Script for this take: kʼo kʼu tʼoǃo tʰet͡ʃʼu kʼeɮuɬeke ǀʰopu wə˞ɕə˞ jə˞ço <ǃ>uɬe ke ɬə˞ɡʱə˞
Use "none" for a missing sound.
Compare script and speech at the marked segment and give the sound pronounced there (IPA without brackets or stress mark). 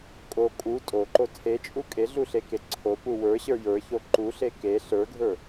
ǃ